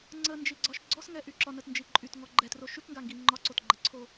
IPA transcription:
ŋ͡ǀənd͡ʒiɡ͡ǀɒʃ ɡ͡ǀɔsŋɛʔy ǁɒnətnd͡ʒi ǃʼytŋɔ ɡ͡ǃɛtroʃ ykŋɡaŋɡi ŋ͡ǃɒǀotɡ͡ǃəǀʰo

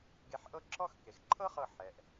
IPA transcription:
ɡe˧ħʔɤ˥ ǁɔ˥˧x ke˩˧xǃʰɤ˥χɤ˧˩ ħɛ˩˧ʔ

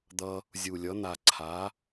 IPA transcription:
d̪ʌ˧ | zʲu˨˩ lʲʌ˩˥n̪a˨˩ ǀʰa˩˥

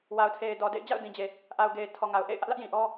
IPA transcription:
wa˨ʊ̯tʰe˨ɪ̯ dɔ˨dḛ˦˨ɪ̯ d͡ʑa̰˦˨ʊ̯dĩ˨d͡ʑe˨ | ʔa˨ʊ̯ɡe˨ɪ̯ tʰɔ˨ŋa˨ʊ̯ʔḛ˦˨ɪ̯ ʔä˦ʔlä˦ʔjĩ˨ ʔɔ˦

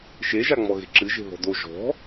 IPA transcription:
ʃeʒaŋ͡mɔɣe̤ ǁɨʒe̤ ðɔ̤do ʒɔ̤

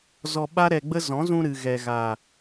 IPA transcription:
zɔ˧ɓa˦ɾɛ˧ɡ͡bə˦ zɔ̃˨˦zũ˧ ɾɨ˨ ɣɛ˨ɣa˨

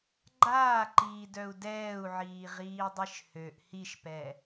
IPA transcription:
ɡ͡ǃaːǃiːdœu̯ dɛːu̯ʕiːʁiːdˤiʃ høʔ hiʃpɛ

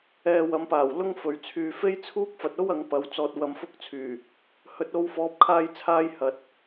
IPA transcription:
ɛː˧wɐ˨˥mpaː˨˩wlʊ˥ŋ fɵ˨˩ɥt͡sʰyː˨ fe˥jt͡sʰuː˥k̚ fɐ˨t̚o˥w ɐ˨˥ŋpɐ˨˥w t͡sɔː˧t̚wɐ˧mfʊ˥k̚t͡sʰyː˨˩ | hɵ˨˥t̚o˧wfɔː˨˥p̚ kʰaː˧jt͡sʰaː˧j hɐ˨t̚

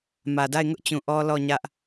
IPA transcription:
mä˨da˦˨ɪ̯ŋʊ˦ʔt͡ɕũ˨ ʔɔ˦lɔ˦˨ ɲä˦ʔ

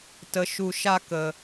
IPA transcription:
tə˧ ʃu˧ʃa˦ kə˧

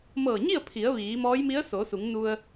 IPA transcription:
mɤː˧˩ɲi˥˨ə̯pʰi˩˧ə̯ ʋiː˩˧mɔː˧˥jmi˧˥ə̯ soː˩˧su˩˧ŋnu˧ə̯

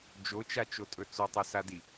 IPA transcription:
d͡ʒot͡ʃat͡ʃotʼɵ t͡sotˤɵsadi

